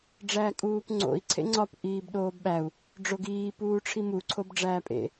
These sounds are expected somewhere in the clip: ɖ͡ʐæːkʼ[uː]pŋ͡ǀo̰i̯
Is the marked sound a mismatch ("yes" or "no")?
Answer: no